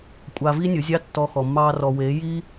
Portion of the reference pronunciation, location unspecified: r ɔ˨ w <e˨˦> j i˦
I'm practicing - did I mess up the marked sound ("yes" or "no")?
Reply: no